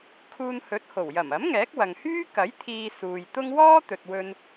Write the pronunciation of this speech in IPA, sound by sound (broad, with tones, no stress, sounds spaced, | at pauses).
kʰ uː˧ n h ɵ˨˥ t̚ h o˨˩ w j ɐ˨˩ m ɐ˨˥ m ŋ ɛː˨˥ k̚ w ɐ˨ ŋ h yː˥ k ɐ˨˥ j t̪ʰ iː˧ s uː˨ j t̪ ʊ˥ ŋ w ɔː˥ t̪ ɵ˨ t̚ w ɵ˧ n